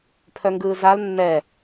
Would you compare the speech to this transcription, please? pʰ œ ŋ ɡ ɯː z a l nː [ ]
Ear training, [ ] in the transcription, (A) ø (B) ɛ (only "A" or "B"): B